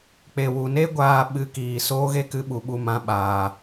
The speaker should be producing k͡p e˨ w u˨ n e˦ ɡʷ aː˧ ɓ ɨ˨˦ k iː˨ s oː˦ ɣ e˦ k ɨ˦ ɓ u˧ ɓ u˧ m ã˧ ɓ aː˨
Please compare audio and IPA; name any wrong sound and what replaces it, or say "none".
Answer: none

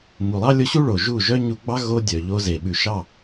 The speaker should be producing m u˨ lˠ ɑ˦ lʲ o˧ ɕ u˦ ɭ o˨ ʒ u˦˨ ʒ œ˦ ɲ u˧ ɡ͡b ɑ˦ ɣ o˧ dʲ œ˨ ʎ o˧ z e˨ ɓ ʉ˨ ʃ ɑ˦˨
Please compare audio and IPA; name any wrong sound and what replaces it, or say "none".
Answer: none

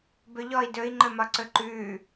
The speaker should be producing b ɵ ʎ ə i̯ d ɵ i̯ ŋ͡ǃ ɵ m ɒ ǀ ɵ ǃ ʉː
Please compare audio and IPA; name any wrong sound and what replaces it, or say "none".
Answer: ə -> ɔ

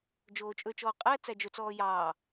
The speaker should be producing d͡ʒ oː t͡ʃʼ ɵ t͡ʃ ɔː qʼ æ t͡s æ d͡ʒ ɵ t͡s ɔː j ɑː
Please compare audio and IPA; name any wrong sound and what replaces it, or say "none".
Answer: none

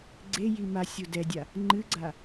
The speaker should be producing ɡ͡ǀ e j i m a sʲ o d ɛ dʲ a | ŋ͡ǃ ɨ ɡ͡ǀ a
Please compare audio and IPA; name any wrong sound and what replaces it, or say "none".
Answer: none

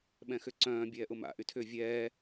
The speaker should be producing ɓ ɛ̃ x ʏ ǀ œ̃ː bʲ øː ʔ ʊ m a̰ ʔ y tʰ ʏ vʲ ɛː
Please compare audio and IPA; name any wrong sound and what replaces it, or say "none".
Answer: øː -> ɛː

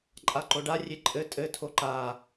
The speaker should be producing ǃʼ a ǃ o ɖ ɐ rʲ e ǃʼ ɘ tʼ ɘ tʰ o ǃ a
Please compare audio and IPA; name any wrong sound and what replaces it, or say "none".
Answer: ɐ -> a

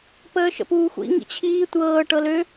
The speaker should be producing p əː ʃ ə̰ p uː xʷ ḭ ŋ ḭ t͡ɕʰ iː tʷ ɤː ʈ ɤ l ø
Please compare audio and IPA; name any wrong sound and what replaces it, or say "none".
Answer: none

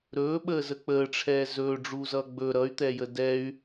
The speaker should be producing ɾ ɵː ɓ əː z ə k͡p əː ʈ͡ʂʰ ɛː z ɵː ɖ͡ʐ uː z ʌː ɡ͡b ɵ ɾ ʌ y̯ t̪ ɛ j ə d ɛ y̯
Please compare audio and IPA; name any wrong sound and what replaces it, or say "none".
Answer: none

